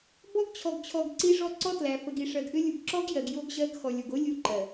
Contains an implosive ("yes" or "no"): no